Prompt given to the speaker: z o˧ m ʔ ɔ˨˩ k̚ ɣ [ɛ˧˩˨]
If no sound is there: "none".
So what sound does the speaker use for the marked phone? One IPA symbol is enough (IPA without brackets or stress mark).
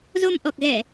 ɛ˧˩˨